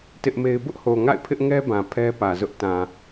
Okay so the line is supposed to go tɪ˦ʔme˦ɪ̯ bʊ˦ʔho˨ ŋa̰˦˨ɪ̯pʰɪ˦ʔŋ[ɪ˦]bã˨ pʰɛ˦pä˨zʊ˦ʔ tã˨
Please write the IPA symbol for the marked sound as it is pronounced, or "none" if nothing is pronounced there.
ɛ˦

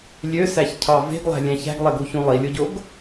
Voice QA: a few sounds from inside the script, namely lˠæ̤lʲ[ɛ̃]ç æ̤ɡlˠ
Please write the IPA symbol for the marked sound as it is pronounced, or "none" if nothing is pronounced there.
æ̃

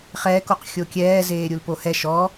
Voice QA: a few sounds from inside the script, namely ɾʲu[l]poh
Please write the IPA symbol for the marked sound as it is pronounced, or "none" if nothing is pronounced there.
l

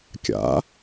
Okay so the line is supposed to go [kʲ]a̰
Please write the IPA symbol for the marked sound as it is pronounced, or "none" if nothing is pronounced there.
kʲ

